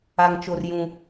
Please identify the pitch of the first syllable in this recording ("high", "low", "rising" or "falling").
high